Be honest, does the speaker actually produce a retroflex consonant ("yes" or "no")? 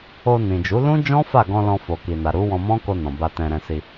no